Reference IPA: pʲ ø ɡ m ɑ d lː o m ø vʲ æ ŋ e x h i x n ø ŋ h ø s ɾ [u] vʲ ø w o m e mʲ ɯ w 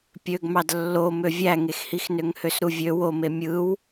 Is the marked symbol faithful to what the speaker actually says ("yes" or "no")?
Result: yes